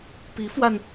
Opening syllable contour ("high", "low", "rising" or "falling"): rising